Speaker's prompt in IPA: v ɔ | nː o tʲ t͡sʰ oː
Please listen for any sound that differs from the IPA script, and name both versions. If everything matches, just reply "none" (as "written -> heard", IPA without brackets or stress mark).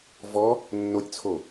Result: oː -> o